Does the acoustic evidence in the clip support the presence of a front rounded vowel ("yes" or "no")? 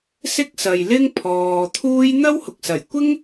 no